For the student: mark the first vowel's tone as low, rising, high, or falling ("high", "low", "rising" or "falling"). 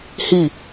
falling